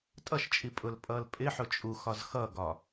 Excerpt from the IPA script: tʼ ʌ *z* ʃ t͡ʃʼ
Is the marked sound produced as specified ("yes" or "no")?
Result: no